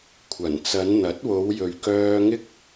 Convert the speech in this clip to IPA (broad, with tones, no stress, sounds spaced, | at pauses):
kʷʰ ɐ˨˩ n t͡s ɐ˨˧ n n̪ ɐ˨˥ t̚ w o˨˧ w j ɵ˨ ɥ k œː˥ ŋ ɪ˥ k̚